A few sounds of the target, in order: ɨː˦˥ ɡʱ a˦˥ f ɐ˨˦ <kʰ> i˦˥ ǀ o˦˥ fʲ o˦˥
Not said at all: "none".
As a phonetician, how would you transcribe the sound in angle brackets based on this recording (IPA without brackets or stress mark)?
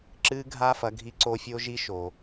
ɡʱ